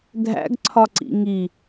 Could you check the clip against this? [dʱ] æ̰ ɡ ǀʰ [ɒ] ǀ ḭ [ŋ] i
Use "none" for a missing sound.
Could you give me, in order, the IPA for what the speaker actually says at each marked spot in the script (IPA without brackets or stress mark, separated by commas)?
dʱ, ɒ, ŋ